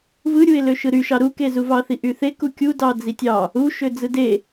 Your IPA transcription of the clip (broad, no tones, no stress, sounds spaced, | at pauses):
v ɯ ɾʲ u ɪ̯ l ø ʃ ɯ ɾ y ʃ ɑ ɾ u k e z u v ɑ θ i ʔ y θ e k u kʲ u d ɑ d͡z i tʲ ɑ | u ʃ ø d͡z ɯ d e